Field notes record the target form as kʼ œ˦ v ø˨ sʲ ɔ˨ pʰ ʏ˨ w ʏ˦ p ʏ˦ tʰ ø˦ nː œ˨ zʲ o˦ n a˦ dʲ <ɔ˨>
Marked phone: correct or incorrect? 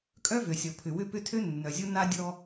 incorrect